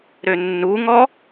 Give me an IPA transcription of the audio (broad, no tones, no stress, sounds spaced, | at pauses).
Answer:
ɾ ø nː u ŋ ɔ